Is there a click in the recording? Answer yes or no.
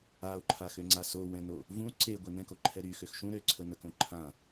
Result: yes